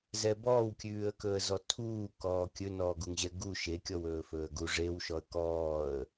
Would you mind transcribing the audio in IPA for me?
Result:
z ɛ b ɔː w kʲ ʉː ə̯ k ɵ ə̯ z ɔ tʰ uː k ɔː kʲ ɵ n ɔː ɡ u ŋ ʑ ɛ ɡ u ʃ e kʲ ɔ w ɵː f ɵː ə̯ ɡ u ʐ e w ʃ ɔ ə̯ k ɔː ə̯

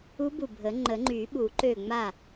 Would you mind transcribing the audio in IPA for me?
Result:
u˧˥ b u˧˩ bʱ ə˨˩˦ ŋ͡ǃ ə˨˩˦ ŋ͡ǃ y˨˩˦ ɓ u˨˩˦ ǃ ø˧˩ ŋ͡m a˧˩

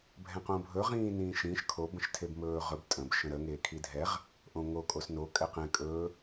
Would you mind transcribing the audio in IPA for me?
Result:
bʱ ɛ̃ q õ bʱ ɵ ʁ ĩː n ĩː ʃ ĩː ʃ kʰ o b ə̃ ʃ tʰ e b m ɵː ʁ ɵ b tʼ ə̃ b ʃ ə̃ ɾ ə ŋ eː kʰ i dʱ ɛ ʁ | ʔ õ ŋ o kʼ o s n o kʼ ɛ q ɛ̃ kʼ ɵː

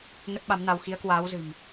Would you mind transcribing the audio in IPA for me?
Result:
ŋ ə˦˥ t̚ ɓ a˨˦ m n a˧ w x i˨˦ ə̯ k w aː˨˦ w z ɨ̤˨˩ m

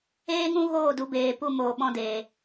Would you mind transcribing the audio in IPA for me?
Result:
eː˦ ŋ ũ˦ ɣ oː˦˨ d u˨˦ b eː˧ p u˦ m oː˧ ɓ ɔ̃˧ d eː˨

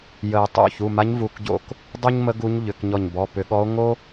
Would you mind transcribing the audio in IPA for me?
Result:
j ə˨˩˦ e̯ tˤ o̰˩˧˩ ç u˩˧˩ m a˧˥ ɲ v u˩˧˩ k ɟ o̰˧˩ k | dˤ u˥ ɲ m ə˧˥ ɡ u˧˥ ɲ ʎ ʏ˩˧˩ k ɲ ɔ˧˩ ɲ b ɔ˩˧˩ p ʏ˨˩˦ ɠ ɔ˧˥ o̯ ŋ o˥

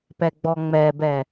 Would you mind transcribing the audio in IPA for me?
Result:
p ɛ ɡ͡b ɔ ŋ͡m ɛ b ɛ

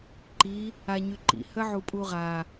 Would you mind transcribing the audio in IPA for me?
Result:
ǃ i | a ɲ y ǃ ḭ h ə ʕ u pʼ u ʁ a

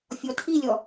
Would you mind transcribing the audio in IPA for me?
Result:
fʲ ɔ tʰ i lʲ ɔ

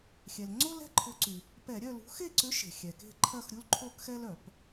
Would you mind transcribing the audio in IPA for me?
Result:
xʲ ɛ˩ l ŋ͡ǀ o˦ l ɛ̤˦˨ ǃʰ ʊ˨˦ ǀ y˩ | p ɛ˧˩˧ ɾʲ œ˦˨ l ṳ˨˦ x e˦˨ ǀ ʏ˨˦ ʃ e̤˩ xʲ ɛ˩ k e̤˦˨ ǃʰ ɐ˦˨ x ɾʲ u˦ l ǃʰ o˦˨ k x ɛ˦ l œ˧˩˧ p

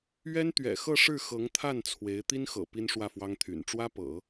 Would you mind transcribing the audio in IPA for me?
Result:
ɥ ɛ˥ n t̪ ɥ ɛ̰˨˩ x ɤ˥˧ ʂ ɻ̩˥˩ x ɤ˧˥ ŋ t̪ʰ a˥˩ n t͡sʰ w e˧˥ ɪ̯ t̪ i˥ n x ɤ̰˨˩ p i˥ n ʂ w ä˥˩ f w ɑ˥ ŋ t̪ʰ y̰˨˩ n ʈ͡ʂ w ä˥ p ɤ̰˨˩˦

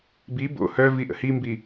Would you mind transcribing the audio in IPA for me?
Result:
b i b o̰ h œ v i ʔ ə̰ h i m b i

